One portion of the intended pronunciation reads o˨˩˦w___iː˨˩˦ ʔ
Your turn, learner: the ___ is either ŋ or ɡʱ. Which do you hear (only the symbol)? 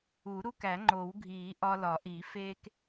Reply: ɡʱ